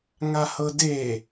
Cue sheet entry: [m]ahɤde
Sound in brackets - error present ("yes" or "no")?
yes